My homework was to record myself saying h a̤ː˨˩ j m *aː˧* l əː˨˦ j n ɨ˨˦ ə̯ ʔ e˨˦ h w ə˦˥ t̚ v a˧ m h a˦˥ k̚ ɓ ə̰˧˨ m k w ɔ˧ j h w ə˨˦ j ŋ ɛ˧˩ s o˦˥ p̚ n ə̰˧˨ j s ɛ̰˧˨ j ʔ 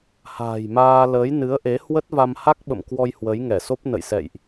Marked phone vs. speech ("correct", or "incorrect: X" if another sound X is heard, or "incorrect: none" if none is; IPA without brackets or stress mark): correct